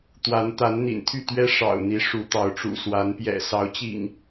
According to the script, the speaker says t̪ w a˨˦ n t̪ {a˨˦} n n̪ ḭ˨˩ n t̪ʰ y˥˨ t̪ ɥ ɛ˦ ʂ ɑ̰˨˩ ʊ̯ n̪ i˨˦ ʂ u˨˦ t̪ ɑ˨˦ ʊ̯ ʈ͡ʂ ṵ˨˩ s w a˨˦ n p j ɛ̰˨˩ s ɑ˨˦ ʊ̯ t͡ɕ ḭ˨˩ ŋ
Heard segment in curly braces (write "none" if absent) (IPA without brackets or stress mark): a˨˦